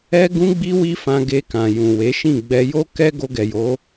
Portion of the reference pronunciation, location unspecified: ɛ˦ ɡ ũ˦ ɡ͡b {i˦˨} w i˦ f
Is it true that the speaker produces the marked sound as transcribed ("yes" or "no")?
no